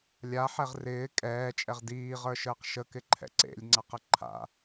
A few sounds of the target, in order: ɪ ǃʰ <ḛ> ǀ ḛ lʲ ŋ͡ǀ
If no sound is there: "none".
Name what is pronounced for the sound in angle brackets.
ɛ̰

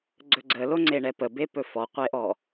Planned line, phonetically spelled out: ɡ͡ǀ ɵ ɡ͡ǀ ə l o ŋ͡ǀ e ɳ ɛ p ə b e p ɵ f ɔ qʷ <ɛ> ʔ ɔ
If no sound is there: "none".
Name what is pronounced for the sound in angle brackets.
e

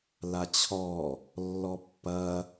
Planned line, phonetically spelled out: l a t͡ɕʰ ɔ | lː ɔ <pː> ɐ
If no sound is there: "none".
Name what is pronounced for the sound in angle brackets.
pː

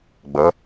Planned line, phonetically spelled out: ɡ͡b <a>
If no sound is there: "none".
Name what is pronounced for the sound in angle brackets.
ʌ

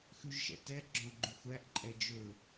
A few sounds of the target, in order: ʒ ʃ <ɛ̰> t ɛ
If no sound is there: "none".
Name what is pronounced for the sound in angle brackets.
ɛ̰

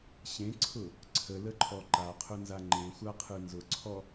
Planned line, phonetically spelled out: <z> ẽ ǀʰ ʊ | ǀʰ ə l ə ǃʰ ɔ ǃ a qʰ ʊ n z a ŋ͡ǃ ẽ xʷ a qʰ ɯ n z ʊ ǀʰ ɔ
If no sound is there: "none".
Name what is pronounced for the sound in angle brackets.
ɕ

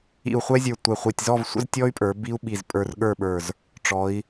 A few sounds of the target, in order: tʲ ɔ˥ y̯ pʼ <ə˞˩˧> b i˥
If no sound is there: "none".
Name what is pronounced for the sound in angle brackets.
ə˞˩˧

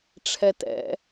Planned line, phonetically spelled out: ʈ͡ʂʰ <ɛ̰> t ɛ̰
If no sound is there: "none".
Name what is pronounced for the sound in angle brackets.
ɛ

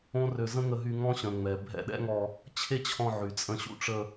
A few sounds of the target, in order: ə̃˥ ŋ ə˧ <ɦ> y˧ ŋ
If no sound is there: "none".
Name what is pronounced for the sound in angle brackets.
ɦ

